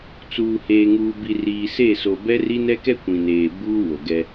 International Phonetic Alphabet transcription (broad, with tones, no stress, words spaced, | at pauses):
t͡suː˨ heː˨ŋuː˨bi˨ riː˨se˦˨so˨ bɛ˦ri˦ nɛ˦kɛ˦ kʷĩ˨neː˨ buː˦wo˨ɡɛ˦